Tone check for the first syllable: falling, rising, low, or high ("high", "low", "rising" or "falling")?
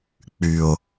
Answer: low